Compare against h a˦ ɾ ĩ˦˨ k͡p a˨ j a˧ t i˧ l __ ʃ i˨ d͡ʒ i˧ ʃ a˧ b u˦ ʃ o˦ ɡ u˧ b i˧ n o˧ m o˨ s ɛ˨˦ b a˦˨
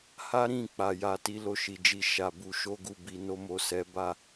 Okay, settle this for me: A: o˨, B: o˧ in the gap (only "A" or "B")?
A